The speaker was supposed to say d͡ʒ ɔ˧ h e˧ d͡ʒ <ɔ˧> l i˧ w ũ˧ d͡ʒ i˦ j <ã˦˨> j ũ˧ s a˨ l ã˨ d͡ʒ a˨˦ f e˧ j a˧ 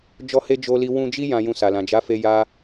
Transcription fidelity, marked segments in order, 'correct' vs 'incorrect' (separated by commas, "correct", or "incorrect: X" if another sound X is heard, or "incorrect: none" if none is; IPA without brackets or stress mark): incorrect: o˧, incorrect: ã˧